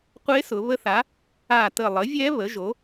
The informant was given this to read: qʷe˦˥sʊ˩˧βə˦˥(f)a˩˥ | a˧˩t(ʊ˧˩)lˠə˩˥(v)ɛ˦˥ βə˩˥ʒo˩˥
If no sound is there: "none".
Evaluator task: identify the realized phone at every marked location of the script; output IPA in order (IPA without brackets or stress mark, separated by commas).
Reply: θ, ə˧˩, vʲ